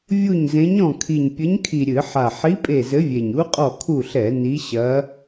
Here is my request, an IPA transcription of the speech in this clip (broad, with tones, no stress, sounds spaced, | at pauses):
vʲ u˦˨ ɲ z ẽ˧˥ ɲ ɔ̃˦˨ kʰ i˨˩ ɲ pʲ ɘ˧˥ ɲ kʰ i˨˩ ɾʲ ɨ˧˩˧ ħ a˨˩ ħ i˧˥ pʼ e˦˨ z ɘ˧˥ vʲ e˨˩ ɲ u˧˥ qʼ ɔ˦˨ kʰ u˦˨ ɬ ɛ˧˩˧ n i˧˥ ɕ ɐ˧˥